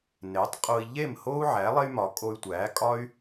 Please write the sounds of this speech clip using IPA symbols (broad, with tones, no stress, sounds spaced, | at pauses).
n e˩˥ tˤ qʼ o˧ i̯ ʎ e˥˩ m h o˥ u̯ ʕ æ˩˥ lˠ e˥ y̯ m ɒ˩˥ kʼ o˧ y̯ tʷ æ˩˥ kʼ ɒ˥ y̯